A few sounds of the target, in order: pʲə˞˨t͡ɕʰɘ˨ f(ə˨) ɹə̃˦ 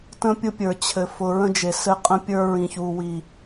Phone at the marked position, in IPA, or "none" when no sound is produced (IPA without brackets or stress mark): ʊ˨